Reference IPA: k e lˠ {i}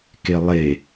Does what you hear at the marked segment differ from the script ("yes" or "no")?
yes